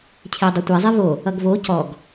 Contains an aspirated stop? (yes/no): yes